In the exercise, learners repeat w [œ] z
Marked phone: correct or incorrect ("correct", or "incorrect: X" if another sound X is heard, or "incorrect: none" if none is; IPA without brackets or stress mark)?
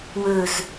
incorrect: ɵ